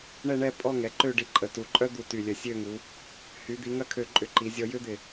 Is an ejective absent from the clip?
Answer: no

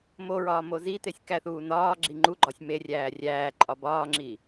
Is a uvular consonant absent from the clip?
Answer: yes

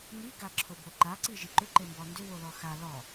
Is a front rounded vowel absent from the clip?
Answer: no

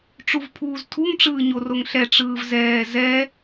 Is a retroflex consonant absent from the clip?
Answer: no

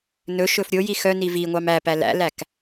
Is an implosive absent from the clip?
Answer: yes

